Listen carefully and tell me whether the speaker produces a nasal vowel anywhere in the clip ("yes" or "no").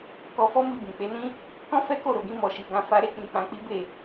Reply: yes